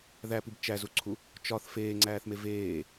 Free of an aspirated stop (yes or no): no